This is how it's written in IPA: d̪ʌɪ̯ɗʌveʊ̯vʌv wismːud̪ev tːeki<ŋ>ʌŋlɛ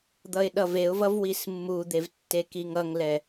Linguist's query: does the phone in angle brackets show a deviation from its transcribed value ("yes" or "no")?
no